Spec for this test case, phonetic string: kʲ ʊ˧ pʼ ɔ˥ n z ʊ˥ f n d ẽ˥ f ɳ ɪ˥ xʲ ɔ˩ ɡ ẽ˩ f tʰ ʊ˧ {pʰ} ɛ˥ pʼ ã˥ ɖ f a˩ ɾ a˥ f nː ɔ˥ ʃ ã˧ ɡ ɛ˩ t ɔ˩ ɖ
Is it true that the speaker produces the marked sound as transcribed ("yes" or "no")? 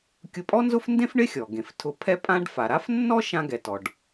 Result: yes